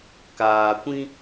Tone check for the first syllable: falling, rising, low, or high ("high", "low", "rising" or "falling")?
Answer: low